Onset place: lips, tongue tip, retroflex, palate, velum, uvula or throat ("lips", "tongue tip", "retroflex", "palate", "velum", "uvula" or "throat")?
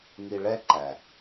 velum